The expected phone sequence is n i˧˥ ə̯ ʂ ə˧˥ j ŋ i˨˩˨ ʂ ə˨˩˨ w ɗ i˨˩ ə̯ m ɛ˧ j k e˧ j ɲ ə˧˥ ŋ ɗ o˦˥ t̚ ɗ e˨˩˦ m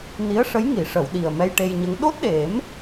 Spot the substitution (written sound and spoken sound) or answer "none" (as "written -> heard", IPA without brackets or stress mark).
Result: k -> ʈ